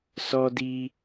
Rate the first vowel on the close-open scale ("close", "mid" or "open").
mid